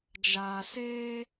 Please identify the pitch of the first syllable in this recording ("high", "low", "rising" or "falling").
low